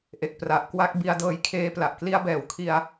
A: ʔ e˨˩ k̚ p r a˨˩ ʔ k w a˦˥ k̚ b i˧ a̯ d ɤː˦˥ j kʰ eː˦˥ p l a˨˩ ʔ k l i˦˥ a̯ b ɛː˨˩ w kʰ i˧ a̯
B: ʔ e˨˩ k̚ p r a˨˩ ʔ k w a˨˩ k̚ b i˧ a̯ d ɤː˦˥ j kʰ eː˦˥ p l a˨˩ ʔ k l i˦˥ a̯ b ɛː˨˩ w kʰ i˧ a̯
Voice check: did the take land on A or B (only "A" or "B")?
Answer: A